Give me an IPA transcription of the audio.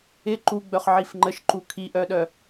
ɪ ǃuɡ͡bœχʕif ŋ͡ǃəʃǃu kʰiʔœɗœ

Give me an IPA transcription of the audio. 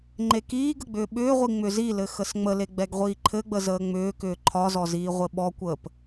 ŋ͡ǃekiːɡə ɡ͡bʏːɓʏːʁʷi ŋ͡mʏzilɘ xəsŋ͡məle ɡ͡bɛɡʁʷiːǃʰɘɡ͡bə zəːŋ͡mʏːkʏː ǃʰɒzɔ ziːʁʷɘɓɔkʷəːp

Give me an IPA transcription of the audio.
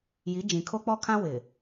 ji˨˦ d͡ʒĩ˨kʰo˦k͡pɔ˦kʰã˦ wɪ˨

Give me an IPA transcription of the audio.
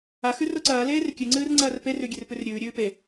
axʉ roǀɐːleːr kʲʉŋ͡ǀɨːr ŋ͡ǀɐːrperʉ ɡʲerpʉrɾʲʉːɾʲʉː pe

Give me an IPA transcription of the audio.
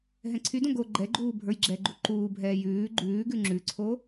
ɦɛ̃ǀʰydõ ɡo ɡ͡ǃɛɡ͡ǃuː bʱə˞jɡ͡ǁɛɡ͡ǃu ǃuːbʱɛː jʉː ɡ͡ǃʉːɡʉ ŋ͡ǁʉǀʰo

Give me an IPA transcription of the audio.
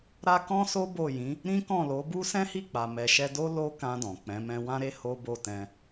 ɾa˦ kɔ̃˦so˦ bo˦˨jĩ˨˦ | ɾĩ˦kɔ̃˦˨ lo˨˦bu˦ sɛ̃˦hi˦˨k͡pa˨ mɛ˨ʃɛ˧do˦ lo˦kã˧ dɔ̃˨k͡pɛ̃˨˦mɛ̃˦ wã˦ɾe˦ ho˦bo˦˨tɛ̃˧

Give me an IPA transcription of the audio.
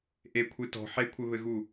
ʔekʷʰɨ tɔ̤ ħekʷʰɘβɘɣu

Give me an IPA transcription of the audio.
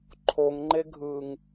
ǃʰoŋŋ͡ǃeɡʱɯːŋ

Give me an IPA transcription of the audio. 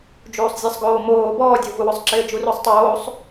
d͡ʒuːsˤzʲɛsˤɡoːmoː bɔːdʲovuwʊsˤ ǁɪːd͡ʒurusˤtˤoːsˤ

